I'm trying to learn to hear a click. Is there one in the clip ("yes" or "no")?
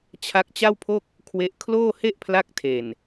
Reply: no